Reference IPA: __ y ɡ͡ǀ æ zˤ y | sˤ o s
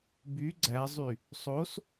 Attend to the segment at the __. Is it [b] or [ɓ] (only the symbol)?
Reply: b